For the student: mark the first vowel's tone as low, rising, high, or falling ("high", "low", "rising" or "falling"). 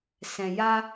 low